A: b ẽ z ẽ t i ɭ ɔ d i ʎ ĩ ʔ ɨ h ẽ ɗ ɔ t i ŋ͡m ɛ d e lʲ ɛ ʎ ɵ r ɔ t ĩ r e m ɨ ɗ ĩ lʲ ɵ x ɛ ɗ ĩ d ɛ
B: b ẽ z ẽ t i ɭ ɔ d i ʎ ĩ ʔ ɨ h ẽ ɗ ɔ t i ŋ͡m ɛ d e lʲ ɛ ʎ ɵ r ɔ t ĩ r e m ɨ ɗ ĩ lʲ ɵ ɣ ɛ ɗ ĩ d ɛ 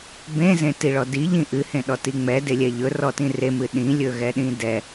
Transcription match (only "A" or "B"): B